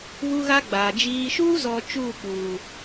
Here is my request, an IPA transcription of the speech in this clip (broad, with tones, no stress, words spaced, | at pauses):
βu˦ɣa˦ɡ͡baː˨ d͡ʒiː˨ʃuː˦zɔ˨ t͡ʃuː˦˨ k͡puː˨